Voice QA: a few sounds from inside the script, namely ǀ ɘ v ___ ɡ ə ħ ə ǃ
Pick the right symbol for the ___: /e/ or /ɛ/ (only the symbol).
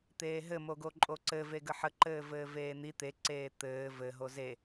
e